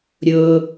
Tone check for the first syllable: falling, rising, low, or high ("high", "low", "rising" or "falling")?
low